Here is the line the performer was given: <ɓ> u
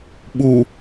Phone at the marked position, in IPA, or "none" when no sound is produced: ɓ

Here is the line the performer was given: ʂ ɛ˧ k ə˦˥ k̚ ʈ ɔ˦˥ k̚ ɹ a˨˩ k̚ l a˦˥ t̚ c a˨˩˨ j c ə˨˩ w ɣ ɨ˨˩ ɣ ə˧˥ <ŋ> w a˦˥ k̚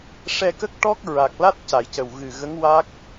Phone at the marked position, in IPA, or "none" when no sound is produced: ŋ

